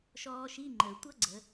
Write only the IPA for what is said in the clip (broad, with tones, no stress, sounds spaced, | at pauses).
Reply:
ʃ ɔː˧ ʃ i˧˥˧ ŋ͡ǃ əː˩ tʷ ʌ˦˥ ɡ͡ǀ ə˩˧